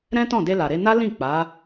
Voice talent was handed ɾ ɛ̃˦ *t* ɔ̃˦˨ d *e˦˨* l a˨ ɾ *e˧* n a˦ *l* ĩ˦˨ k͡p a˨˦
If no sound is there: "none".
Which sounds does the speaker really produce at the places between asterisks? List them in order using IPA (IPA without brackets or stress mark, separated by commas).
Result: t, e˧, e˧, l